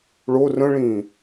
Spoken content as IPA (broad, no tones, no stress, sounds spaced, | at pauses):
ɭ o r ə̃ ɭ ĩ